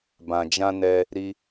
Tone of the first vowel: low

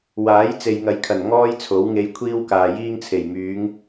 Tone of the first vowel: rising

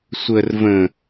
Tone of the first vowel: low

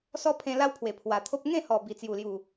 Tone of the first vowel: high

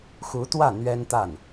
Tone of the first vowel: rising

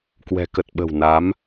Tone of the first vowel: low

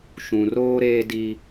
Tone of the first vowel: low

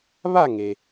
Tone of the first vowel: falling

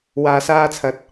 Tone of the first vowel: low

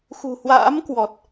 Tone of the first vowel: low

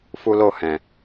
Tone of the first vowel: high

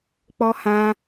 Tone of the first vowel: high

